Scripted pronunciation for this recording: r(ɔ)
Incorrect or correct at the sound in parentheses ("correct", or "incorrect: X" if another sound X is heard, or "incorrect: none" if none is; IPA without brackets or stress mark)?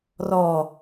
correct